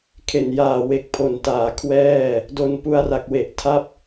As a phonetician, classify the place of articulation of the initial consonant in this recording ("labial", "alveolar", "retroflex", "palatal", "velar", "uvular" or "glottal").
velar